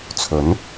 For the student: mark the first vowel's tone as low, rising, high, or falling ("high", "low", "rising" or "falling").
rising